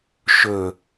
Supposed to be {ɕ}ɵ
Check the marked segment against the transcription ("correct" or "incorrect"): incorrect